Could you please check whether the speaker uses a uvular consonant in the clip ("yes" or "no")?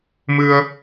no